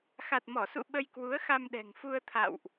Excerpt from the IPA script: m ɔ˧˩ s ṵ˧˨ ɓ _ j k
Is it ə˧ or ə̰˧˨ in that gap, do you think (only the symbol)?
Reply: ə˧